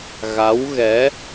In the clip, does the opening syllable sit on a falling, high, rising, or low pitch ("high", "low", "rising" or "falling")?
rising